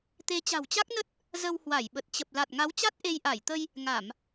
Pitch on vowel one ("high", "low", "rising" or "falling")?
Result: rising